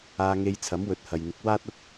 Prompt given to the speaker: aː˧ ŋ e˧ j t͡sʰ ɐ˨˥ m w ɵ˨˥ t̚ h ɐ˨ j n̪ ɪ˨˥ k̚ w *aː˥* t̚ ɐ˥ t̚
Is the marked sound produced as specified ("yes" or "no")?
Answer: yes